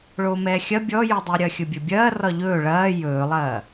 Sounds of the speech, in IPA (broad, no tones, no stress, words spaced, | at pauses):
ɭoːmɛːxʲɐ bʲɔjydˤy ɾʲɐːxʲɵbʲɵbʲɐː rɒʎɵː ɭɐː jɵːlˠɐː